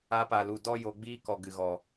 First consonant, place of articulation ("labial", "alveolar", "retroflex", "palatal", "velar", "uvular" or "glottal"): labial